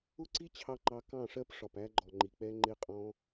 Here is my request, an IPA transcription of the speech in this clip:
ʊ˦ ǀ i˦ t͡ɕʰ ɑ˧ ŋ͡ǃ ɑ˧ k ɑ̃˦˨ ʂ ɜ˦ p ʂ ɒ˨ p æ˧ ɡ͡ǃ ɔ˨ ŋ͡ǃ i˨ k͡p ɛ˧ ŋ͡ǃ ɪ˧ qʼ ɔ̃˧

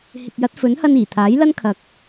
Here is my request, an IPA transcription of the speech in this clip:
h ɪ˨ k̚ j ɐ˨˥ t̚ f ɵ˨˥ n h ɐ˧ n iː˨˩ t̪ʰ aː˨˥ j l ɐ˥ n kʰ ɐ˧ k̚

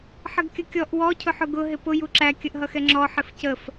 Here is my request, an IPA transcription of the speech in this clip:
ħ ə ɡ kʲ ə kʲ ɔ ʔ w ɔ cʰ ʊ ħ ʊ ɡ ʊ ɦ ɪ p ʊ j u ǁ æ kʲ ə ʔ ɦ ʌ x ɛ ŋ͡ǁ ɔ ħ ɪ f c ə f

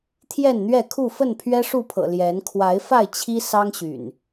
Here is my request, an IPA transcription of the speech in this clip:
t̪ʰ j ɛ˥˨ n n̪ ɥ ɛ˥˨ kʰ u˥˨ f ə˥˨ n pʰ ɥ ɛ˦ ʂ u˥˨ pʰ ɤ̰˨˩ l j ɛ˨˦ n kʰ w a˨˦ ɪ̯ f a˥˨ ɪ̯ t͡ɕʰ i˦ s ɑ˦ ŋ ɕ y̰˨˩ n

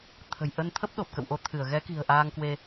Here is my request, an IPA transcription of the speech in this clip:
t̪ʰ ə̤˨˩ j ʔ ə˧ n t̪ʰ ə˦˥ p̚ ɗ o˨˩ p̚ k ə̰˧˨ w ʔ o˨˦ t̪ʰ ɨ˧˩ ə̯ ɣ ɛ˨˦ k i̤˨˩ ə̯ ʔ aː˧ ŋ k w e˧

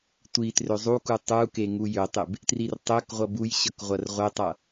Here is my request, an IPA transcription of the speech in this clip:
tʷ i t r ø zˤ u k u tˤ u k e ŋ u j ø tˤ ɪ b | t r i r tˤ ø k ʁʷ ʌ b u j ɕ ʌ k ʁʷ ɐ r ʁʷ e tˤ ʌ

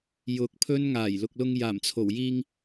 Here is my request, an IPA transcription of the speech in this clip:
j ʊ˨˥ k̚ pʰ ɵ˥ n ŋ aː˨˩ j l ʊ˨ k̚ l ʊ˧ ŋ j aː˨˩ m t͡sʰ o˨˩ w j iː˧ ŋ

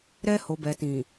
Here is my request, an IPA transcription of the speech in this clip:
ɾ ɛ˧ h o˨ b ɛ˨ t ĩ˨

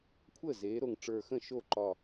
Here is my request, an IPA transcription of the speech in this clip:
kʷʰ əː˥˩ z eː˩˥ ɾ o˧˩ ŋ ʈ͡ʂ ə˞˧˩ x ə̃˥˩ ʃ o˥˩ ǃ ɒ˧˩

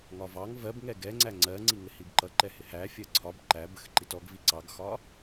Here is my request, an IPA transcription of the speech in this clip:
ŋ ɒ v ɑ ŋ v ɜ b ŋ ɛ ɡ ɛ ŋ͡ǀ æ ŋ͡ǀ ɜ ŋ͡ǀ i ŋ ɪ h i b ǃ ʌ ǃ ɛ h ɪ h æ fʲ ɜ ǀʰ ɒ b ǃ æ b ə x ǃ i t ɔ ɡ v i ǀ ɑ ɡ x ɒ

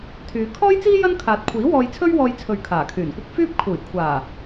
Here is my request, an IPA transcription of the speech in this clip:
t̪ʰ yː˨˧ kʰ ɔː˥ j t͡s iː˥ j ɐ˥ n kʰ aː˨ t̚ kʷʰ iː˨˥ w ɔː˧ j t͡sʰ ɵ˥ ɥ w ɔː˧ j t͡sʰ ɵ˨ ɥ kʰ aː˨˩ kʰ yː˨˩ n kʷ ɐ˥ k̚ f yː˥ p̚ kʰ uː˨˩ j kʷʰ aː˨˩

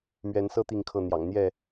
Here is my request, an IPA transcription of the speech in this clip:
m ɥ ɛ˨˦ n s ɤ˦ t̪ i˥˨ ŋ kʰ ɤ˥˨ n̪ j ɑ̰˨˩ ŋ n̪ j ɛ˥˨

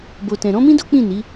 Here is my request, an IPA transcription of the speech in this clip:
b o˨ t ɛ̃˨ ɾ ɔ̃˨˦ m ĩ˦ d o˦ k͡p ĩ˦˨ n i˨˦

